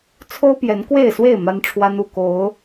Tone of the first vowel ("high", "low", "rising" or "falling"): high